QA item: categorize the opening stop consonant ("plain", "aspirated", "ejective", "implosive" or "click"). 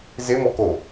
plain